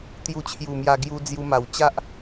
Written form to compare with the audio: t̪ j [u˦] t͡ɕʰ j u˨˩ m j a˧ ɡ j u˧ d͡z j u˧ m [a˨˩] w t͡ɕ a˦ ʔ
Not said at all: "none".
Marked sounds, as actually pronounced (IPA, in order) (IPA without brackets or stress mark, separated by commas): u˧, a˨˩